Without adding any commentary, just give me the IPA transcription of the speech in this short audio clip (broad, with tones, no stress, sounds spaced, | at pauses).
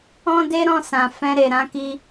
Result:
ɔ̃˦ d e˦ ɾ ɔ̃˦˨ s ã˨ f ɛ̃˧ ɾ e˨ ɾ ã˧ k i˧